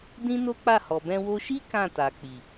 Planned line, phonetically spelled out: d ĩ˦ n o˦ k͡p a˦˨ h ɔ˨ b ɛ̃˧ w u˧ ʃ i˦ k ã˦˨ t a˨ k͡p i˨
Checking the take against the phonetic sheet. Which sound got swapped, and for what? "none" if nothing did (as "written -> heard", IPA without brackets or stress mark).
u˧ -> o˧